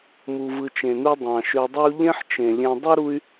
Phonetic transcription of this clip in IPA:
m u˨ v ɯ˨ t͡ʃ ẽ˩ n u˦ dˤ ɑ̃˩ ʃ ø˨ dˤ e˦ u̯ ʎ ẽ˦ ħ t͡ʃ ẽ˩ lʲ ẽ˨ dˤ u˥ ɾ u˦ y̯

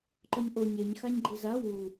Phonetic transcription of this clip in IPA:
ǃ ɔ ɲ ʔ o ɲ e ɲ x a ɲ ɡ͡ǃ i z a w u

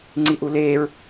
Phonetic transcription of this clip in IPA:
ŋ͡ǀ i ʔ u l eː ɹ

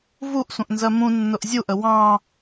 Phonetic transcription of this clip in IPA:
v u ʔ sʷ ə̃ ʔ n z ɜ m ũ nː ʊ ʔ zʲ u ʔ ə w ɑ̃

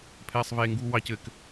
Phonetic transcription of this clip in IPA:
pʰ ɛː sˤ v eː ŋ ɡ uː w ɑ c ɘ k

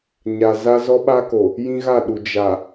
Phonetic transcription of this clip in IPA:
ɲ a˨ z a˦ z ɔ˦ ɓ a˦ k o˨ | j ĩ˦ ɣ a˦˨ ɗ u˨ d͡ʒ a˨

